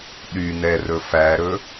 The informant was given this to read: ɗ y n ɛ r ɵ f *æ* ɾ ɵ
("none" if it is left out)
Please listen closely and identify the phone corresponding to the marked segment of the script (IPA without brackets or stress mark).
æ